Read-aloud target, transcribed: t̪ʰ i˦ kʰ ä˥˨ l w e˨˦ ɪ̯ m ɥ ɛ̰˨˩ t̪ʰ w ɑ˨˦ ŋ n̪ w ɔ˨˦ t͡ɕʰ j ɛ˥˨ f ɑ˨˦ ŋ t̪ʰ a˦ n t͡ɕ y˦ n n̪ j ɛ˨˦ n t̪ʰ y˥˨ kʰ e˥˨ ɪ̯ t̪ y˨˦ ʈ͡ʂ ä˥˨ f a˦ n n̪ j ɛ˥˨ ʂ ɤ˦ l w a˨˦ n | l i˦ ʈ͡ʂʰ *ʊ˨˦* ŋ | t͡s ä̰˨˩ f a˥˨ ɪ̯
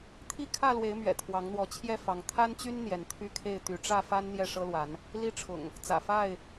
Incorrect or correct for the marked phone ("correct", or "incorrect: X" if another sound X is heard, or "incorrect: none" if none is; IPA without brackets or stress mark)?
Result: incorrect: ʊ̰˨˩